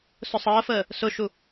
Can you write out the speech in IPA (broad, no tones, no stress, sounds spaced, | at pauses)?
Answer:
s ʊ sˤ əː f əː | s ʊ ʃ u